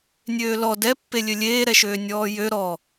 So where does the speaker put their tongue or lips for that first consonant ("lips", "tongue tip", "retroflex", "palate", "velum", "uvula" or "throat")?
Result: tongue tip